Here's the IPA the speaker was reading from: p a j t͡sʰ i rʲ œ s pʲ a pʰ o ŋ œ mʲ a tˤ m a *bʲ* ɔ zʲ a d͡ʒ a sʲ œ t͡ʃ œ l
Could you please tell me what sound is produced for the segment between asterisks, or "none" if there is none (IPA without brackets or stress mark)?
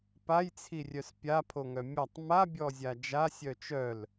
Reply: bʲ